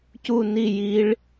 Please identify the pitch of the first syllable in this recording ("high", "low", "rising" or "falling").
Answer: falling